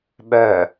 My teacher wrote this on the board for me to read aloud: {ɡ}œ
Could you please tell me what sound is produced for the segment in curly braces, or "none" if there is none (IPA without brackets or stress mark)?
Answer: ɓ